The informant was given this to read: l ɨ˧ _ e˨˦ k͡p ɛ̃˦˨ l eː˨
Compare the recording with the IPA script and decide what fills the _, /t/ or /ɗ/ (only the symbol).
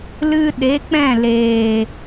ɗ